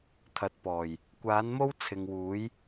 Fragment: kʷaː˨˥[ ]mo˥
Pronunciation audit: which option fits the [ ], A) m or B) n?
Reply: B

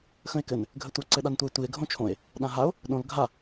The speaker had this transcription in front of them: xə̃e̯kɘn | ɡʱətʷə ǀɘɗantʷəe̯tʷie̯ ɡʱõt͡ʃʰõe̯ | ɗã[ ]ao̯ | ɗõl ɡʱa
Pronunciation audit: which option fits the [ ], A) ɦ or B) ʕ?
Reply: A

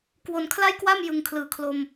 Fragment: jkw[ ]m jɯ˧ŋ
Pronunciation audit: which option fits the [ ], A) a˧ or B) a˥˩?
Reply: B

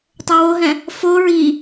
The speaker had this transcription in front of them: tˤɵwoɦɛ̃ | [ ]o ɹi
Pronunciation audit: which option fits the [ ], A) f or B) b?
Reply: A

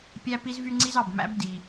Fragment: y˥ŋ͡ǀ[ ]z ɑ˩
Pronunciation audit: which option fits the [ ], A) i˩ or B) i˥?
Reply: B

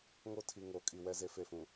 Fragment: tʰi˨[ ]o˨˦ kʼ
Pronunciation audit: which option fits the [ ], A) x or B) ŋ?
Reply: B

